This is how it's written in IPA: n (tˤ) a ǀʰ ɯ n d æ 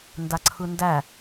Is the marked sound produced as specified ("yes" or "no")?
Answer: no